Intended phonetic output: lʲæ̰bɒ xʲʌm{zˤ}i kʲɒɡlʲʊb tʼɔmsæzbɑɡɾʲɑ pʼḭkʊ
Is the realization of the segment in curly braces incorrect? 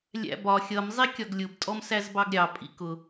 no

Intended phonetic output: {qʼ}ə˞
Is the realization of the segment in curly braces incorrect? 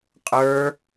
no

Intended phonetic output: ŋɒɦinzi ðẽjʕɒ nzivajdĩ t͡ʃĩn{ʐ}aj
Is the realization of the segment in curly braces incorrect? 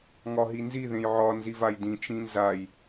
yes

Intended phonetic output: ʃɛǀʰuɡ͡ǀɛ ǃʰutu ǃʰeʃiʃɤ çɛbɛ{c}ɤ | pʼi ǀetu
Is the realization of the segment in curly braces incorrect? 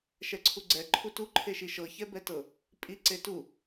yes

